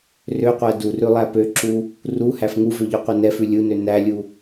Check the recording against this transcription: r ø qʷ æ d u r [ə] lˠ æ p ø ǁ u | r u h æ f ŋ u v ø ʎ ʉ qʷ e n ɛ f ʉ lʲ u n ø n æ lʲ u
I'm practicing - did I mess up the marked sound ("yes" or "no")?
yes